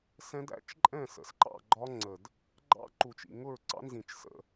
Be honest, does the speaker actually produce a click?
yes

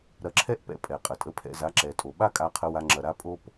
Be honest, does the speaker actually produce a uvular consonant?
yes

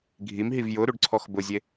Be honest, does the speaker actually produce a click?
yes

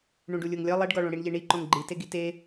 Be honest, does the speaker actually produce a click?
yes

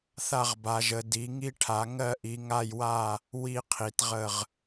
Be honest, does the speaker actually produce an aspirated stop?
yes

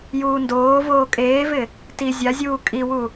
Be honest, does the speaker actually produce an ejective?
yes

